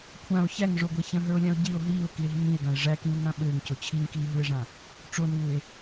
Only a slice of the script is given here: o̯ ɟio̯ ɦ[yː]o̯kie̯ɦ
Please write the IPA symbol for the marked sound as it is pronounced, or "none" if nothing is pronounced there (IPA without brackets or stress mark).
iː